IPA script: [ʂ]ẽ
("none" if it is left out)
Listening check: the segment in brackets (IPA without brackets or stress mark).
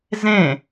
z